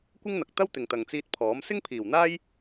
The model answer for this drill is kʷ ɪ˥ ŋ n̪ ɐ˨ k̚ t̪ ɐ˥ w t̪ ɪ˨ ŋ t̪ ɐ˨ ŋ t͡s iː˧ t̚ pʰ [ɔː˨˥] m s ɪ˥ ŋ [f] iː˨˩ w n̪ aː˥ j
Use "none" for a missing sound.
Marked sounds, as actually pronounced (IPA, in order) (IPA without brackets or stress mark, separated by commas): ɔː˨˥, pʰ